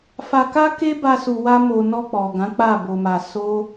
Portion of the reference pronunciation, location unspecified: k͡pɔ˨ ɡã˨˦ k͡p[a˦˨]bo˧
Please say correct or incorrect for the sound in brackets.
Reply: correct